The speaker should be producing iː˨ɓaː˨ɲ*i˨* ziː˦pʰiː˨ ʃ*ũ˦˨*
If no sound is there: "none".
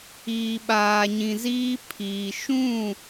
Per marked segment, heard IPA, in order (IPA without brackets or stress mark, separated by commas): ĩ˨, ũ˦˨